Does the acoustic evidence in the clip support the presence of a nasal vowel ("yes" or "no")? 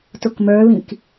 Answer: yes